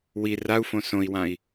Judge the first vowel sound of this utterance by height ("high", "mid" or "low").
high